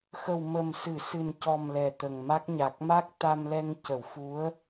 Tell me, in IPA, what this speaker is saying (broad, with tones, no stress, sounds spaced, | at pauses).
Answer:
x ə˨˩ w m ə˨˩ m s ɨ˨˩˨ s ɨ˨˩ n c ɔ˨˩ m l ɛ˨˩ t̪ ə˨˩ ŋ m a˦˥ k̚ ɲ a˨˩ k̚ m a˦˥ k̚ t̪ a˧ m l ɛ˧ ŋ c ə˨˩˨ w f u˧˥ ə̯